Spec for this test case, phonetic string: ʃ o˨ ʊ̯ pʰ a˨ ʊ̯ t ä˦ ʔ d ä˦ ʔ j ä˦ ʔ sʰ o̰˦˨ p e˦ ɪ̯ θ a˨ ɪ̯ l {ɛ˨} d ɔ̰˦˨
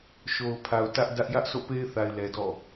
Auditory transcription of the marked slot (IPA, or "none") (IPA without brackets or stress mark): ɛ˨